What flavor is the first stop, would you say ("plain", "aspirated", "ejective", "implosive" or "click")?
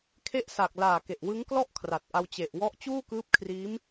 aspirated